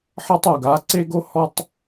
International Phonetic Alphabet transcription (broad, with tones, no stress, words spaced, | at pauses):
ħɤ˦tˤu˨ɡa˦ ǀe˦ɡo˦hɔ˦tˤ